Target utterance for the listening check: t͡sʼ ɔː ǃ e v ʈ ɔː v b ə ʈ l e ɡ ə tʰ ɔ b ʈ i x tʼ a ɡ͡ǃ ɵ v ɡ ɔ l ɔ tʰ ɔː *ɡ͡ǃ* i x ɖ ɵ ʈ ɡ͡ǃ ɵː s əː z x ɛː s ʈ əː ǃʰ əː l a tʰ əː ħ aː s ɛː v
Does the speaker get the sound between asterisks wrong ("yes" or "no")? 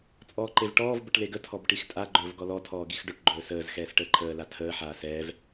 yes